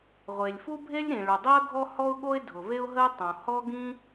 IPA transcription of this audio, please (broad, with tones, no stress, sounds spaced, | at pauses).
ʁʷ e˩ lʲ f u˥ bʱ e˥ lʲ ɾ ĩ˩ ɭ ʊ˩ dˤ i˥ ə̯ ɡʱ ɔ˥ h ɔ˥ ʊ̯ ɠ o˥ ɪ̯ dʱ ʊ˩ v e˥ ʊ̯ ɦ ə˥ ɪ̯ tˤ õ˩ h ɔ˥ ɡ ĩ˥